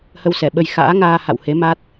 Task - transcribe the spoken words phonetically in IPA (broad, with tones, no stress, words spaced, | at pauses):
hə˧wsɛ˧˩ɓə˧j xa̰ː˧˥ŋaː˧ ha̰˧˨whe˨˦ma˦˥t̚